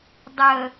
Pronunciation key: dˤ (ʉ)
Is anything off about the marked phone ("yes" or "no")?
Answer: yes